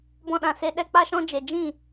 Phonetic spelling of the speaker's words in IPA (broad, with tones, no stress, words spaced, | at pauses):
bɔ̃˦ɗã˧ se˧ ɗɛ˦k͡pa˦ʃɔ̃˦ d͡ʒe˧ d͡ʒĩ˦˨